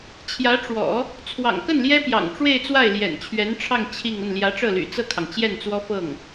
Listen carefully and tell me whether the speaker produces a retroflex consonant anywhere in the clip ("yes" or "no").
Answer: yes